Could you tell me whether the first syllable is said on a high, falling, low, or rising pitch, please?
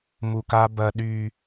low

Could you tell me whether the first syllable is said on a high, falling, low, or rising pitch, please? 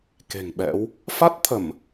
low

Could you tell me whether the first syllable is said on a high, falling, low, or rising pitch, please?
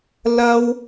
high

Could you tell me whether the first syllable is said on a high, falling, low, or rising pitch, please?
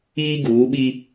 high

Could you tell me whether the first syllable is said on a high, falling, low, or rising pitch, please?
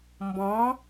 rising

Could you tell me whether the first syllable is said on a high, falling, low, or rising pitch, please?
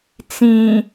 low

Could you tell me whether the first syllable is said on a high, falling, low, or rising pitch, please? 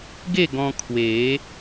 falling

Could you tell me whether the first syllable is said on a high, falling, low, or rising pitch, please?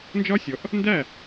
high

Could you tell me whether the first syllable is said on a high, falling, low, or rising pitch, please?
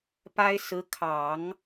high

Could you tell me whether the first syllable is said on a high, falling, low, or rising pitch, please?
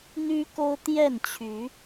high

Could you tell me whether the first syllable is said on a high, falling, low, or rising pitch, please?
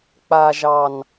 low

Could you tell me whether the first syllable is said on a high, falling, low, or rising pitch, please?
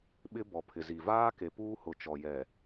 high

